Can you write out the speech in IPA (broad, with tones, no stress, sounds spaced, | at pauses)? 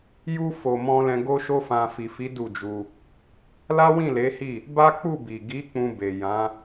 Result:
j u˧ f o˨ m ɔ̃˧ l ɛ̃˧ ɡ o˦ ʃ o˦ f ã˧ f i˨ f i˨˦ d u˦˨ d͡ʒ u˧ | l a˦ w ĩ˦˨ l e˨˦ h i˦˨ | b a˦ k͡p u˦˨ b i˨ ɡ i˨˦ k͡p ũ˧ b e˨ j ã˨˦